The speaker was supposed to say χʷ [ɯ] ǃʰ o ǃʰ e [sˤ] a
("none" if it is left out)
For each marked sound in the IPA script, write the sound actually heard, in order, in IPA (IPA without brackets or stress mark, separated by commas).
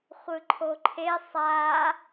ɯ, sˤ